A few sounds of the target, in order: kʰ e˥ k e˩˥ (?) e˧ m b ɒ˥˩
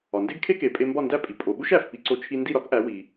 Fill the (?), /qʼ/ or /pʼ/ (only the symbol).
pʼ